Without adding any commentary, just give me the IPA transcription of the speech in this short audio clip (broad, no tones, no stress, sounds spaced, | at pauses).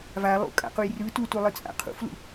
v a lˠ ṵ kʼ a̰ q u j r ɯ t u t u lˠ ɯ t͡sʼ a̰ qʰ ṵ f l ṵ